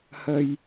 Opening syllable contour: low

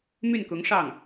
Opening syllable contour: falling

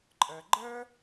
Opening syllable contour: low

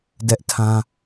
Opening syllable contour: high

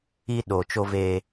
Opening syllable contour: high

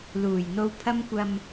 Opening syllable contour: low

